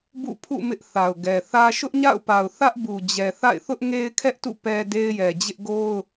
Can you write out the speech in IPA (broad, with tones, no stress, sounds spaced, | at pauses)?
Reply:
b ṵ˦˨ pʰ ṵ˦˨ m ɪ˦ ʔ θ a˨ ʊ̯ ɡ ɛ˨ θ ä˦ ʃ ʊ˦ ʔ ɲ a̰˦˨ ʊ̯ p a˨ ʊ̯ θ ä˦ ʔ b u˨ d͡ʑ ɛ˨ θ a̰˦˨ ɪ̯ θ ʊ˦ ʔ ŋ e˦ ɪ̯ kʰ ɛ˦ ʔ t ṵ˦˨ p ɛ˦ d e˦ ɪ̯ j ɛ˨ d͡ʑ ɪ˦ ʔ ɡ o˦ ʊ̯